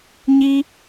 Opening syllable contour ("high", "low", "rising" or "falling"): low